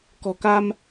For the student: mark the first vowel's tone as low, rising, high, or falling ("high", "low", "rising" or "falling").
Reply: low